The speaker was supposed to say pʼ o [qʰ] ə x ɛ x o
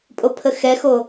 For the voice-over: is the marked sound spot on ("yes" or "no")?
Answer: no